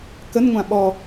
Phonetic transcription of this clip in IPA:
kənŋʷã ɓɔ

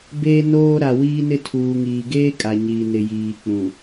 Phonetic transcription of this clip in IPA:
beː˦noː˦ɾa˨ wiː˦nɪ˦tʰuː˨ŋiː˨ ɡeː˦ kʼa˨ɲiː˨nɪ˨jiː˨ k͡pũ˨

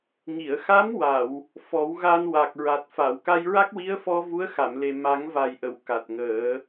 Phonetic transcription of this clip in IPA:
ŋi˨˩˨ə̯xa˧˥mwa˨˩˨w | fɔ˨˩˦wɣa˧n wa˨˩k̚ɹa˨˩t̚fa˨˩˨w ka˧jɹa˦˥k̚wi˧˥ə̯fɔ˧ vu˧˥ə̯xa˨˩˨mle˨˩ ma˨˩˦ŋva˨˩jʔə˨˩˨w ka˨˩t̚ŋəː˨˩˦

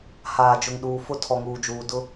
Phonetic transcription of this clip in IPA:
haː˨d͡ʒʊ˨ŋ ɗuː˨fʊ˦ tʰɔ˨ŋuː˨d͡ʒuː˨ dʊ˦

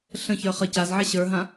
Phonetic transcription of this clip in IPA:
ɬə̃çə˞ χə cazʕɛ ɕə˞ɦã

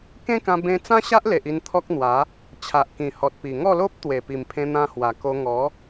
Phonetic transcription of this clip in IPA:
kẽ˦kã˧ bẽ˧t͡sã˦ɕa˦ʔle˨ʔ i˧nt̪ʰɔ˦k̚n̪wa˨˦ | t͡ɕʰa˨ʔkĩ˨˩hɔ˨t̚ pi˨˩ŋɔ˥˧lo˦p̚t̪we˨˩ pi˨˩mpʰẽ˧n̪ã˧hwa˨˩ ko˧ŋɔ˨˦

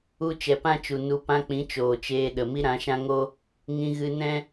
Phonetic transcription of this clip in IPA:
u˧t͡ʃɛ˨pã˦t͡ʃu˨ nu˧ pã˧k͡pĩ˨˦ t͡ʃoː˨t͡ʃeː˧ ɗə˨ mi˦ɾã˨˦ʃã˦ŋo˦ | ŋĩ˧ɣɨ˧nɛ̃˦

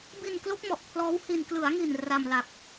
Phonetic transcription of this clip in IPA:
bi˧nklo˦˥k̚mɔ˨˩ʔ pʰlɔː˦˥whi˧n klɯ˩˦a̯ŋi˨˩n ra˧mla˨˩k̚

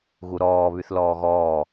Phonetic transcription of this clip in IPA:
ɣuɾɔː βyθlɔːɣɔː

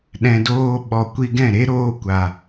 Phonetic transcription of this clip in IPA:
ɗɛ̃˧doː˦ ɓɔ˨kʷi˧ɡɛ̃˦˨ɾe˦ ɾoː˧kʷa˨

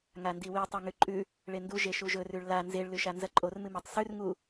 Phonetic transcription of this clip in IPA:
ŋandiwi tˤʉŋʉǃʼʉ | ɭendu ʒeʃuʒɵrʉɭ la nzeɭ lʉʃanzɐǃʼor mɨmetˤsʉr ŋu

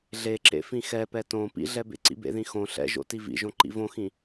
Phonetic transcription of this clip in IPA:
ɮeǁḛ fĩxɛpɛ tõ pḭɮɛ bḛǀḭbḛðĩ xõ ɬɛ̰ʒo̰ tivḭʒõ ǃḭvõxĩ

